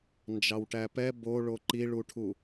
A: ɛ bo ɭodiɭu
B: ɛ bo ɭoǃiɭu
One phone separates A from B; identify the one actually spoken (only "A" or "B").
B